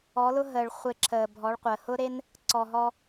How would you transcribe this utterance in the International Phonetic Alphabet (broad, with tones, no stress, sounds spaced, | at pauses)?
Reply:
ɔ˨˦ l ʊ˦ ɦ əː˨ ɭ χʷ e˧ ǁʰ əː˨ bʱ ɔ˨˦ ɭ qʷ əː˨ h ʊ˦ ɾ e˦ n | ǀ ɔ˨ ɦ ɔ˧